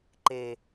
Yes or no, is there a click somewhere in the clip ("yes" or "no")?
yes